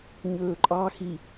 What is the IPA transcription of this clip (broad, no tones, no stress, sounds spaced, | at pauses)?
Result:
ɲ ɵː ǃʼ ɑ x i